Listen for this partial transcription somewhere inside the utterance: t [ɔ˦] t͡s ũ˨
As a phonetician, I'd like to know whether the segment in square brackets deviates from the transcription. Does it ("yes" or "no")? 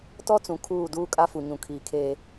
no